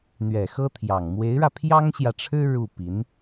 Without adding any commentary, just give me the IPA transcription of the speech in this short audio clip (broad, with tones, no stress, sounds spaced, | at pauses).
n̪ ɥ ɛ˨˩ x ɤ˥ t̪ʰ j ɑ˨˩ ŋ m w e˧˥ ɪ̯ ɻ ä˧ pʰ j ɑ˥ ŋ ɕ j ä˨ ʈ͡ʂʰ ɻ̩˥ ɻ u˥˩ p i˧˥ n